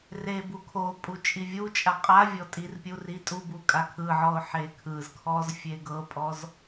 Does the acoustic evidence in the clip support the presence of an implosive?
no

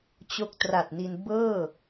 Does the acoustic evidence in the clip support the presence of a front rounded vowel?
no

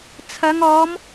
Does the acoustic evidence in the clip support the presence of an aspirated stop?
yes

